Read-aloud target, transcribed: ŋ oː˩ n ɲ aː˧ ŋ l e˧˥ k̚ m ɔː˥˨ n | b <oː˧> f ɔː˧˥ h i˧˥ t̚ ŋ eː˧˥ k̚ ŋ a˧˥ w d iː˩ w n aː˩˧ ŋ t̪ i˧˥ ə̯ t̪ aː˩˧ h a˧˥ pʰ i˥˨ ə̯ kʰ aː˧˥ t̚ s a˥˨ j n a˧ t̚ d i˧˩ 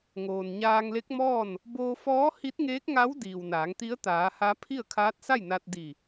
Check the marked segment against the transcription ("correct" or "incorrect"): correct